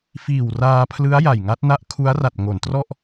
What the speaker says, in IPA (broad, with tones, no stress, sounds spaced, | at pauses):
f iː˨˩ w r aː˧ pʰ l ɯ˦˥ a̯ j a˨˩ j ŋ a˦˥ t̚ n a˦˥ ʔ kʰ u˦˥ a̯ r a˨˩ t̚ ŋ o˩˦ n t r ɔ˥˩ ʔ